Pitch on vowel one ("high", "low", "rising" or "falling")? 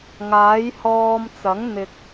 rising